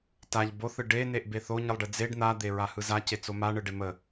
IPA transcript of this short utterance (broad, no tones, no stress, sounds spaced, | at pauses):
t a ʎ b o θ ɯ ɖ e n e ʔ b e θ o ɲ ɯ lˠ ɖ e d͡z e ɖ n̪ a d̪ e ɹ a h ɯ z a c e t͡s o m a ɳ ɯ ɖ e m ə